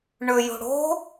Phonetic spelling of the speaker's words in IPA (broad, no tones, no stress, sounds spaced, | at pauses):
ɳ ɵ j o̤ ɽ o̤